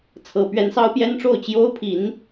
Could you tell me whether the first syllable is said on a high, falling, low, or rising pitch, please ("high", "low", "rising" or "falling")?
rising